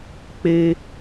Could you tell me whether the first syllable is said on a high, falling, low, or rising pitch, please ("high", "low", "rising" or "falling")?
high